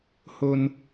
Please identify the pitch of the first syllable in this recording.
high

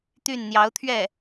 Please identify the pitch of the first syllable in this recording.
falling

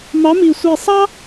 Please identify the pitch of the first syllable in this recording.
rising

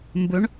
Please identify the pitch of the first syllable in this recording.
rising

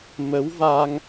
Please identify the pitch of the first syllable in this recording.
rising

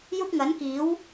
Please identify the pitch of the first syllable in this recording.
high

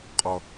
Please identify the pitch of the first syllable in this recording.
low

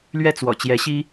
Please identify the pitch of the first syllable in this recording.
falling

